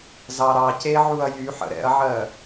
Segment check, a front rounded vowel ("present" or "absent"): present